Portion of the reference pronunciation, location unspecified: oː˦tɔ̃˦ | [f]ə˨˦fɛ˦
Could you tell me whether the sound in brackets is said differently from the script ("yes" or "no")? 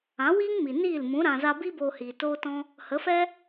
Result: yes